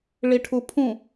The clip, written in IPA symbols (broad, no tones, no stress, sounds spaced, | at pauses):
ɭ i ʈʰ u pʰ ũ